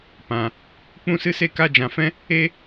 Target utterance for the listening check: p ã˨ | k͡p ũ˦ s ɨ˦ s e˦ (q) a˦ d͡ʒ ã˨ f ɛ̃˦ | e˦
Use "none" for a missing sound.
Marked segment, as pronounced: k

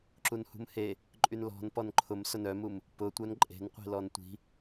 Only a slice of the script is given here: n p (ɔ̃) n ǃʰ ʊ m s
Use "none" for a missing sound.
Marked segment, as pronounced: ɔ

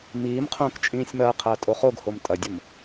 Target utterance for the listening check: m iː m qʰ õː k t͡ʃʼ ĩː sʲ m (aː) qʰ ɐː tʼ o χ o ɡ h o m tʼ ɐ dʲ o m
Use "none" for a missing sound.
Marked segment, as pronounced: ɐː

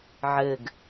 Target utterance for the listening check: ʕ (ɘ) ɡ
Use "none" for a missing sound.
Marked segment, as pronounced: ɘ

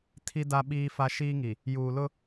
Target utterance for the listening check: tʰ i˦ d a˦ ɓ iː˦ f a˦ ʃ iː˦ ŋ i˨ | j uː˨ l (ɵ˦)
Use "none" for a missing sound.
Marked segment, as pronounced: ʊ˦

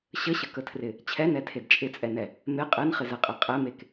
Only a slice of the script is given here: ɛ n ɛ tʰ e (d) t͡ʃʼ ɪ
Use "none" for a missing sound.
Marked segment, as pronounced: d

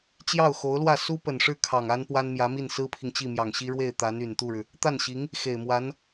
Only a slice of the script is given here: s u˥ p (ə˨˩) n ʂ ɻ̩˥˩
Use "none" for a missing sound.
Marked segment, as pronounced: ə˨˩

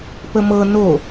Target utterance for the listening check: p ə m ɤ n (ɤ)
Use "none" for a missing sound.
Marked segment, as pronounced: o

